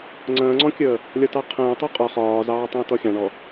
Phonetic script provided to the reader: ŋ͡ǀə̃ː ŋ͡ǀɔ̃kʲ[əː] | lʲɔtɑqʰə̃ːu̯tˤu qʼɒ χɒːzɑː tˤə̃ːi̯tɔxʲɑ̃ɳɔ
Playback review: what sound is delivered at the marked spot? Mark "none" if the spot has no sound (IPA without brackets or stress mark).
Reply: əː